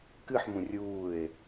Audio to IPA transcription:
kɨħmũ rʲuːe̯

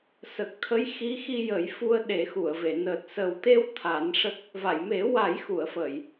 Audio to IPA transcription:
sə˨˩k̚t̪ʰə˧˥j xi˧˥xi˧jə˨˩˦j fu˧ə̯ɗe˨˩˦xu˨˩˨ə̯ve˨˩˨ nəː˨˩t̚səː˨˩wt̪e˧w t̪ʰa˨˩˦n ʂə˦˥k̚ | va˨˩˨jme˨˩˦ wa˨˩˦jxu˨˩˨ə̯fə˨˩˨j

